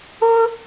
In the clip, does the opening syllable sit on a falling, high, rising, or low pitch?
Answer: high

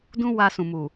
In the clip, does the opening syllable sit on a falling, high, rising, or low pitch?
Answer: high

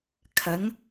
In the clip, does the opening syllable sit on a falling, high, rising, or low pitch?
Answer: rising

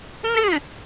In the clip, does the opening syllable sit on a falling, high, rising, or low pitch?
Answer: falling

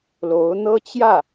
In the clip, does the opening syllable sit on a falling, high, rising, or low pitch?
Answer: rising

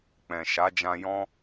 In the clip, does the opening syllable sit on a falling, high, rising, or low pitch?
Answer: low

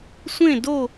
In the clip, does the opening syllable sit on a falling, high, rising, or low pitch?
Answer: falling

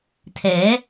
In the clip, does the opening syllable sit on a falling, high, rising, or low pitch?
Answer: rising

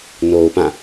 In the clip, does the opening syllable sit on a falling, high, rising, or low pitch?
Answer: low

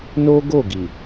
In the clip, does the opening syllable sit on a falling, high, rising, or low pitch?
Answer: high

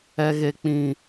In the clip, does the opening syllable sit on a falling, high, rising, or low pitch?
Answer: high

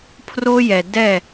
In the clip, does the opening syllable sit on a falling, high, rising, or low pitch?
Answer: high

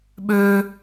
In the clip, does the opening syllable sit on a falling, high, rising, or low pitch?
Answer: high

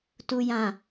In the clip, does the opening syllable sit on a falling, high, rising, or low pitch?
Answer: low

